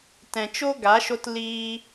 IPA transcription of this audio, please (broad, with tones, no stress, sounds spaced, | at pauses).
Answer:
t ɛ̃˨ t͡ʃ o˦ ɡ a˨˦ ʃ o˧ t l iː˧